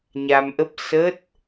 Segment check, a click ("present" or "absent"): absent